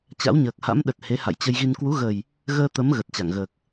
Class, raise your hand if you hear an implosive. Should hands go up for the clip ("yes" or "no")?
yes